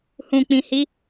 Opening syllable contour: low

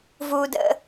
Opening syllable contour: high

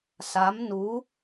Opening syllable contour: rising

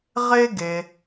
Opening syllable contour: high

